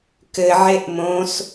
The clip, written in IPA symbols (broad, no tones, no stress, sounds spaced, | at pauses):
k ɘ ʕ e ʔ m õ s